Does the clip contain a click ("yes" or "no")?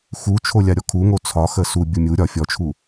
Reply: no